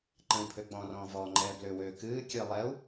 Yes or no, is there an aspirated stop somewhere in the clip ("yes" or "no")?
yes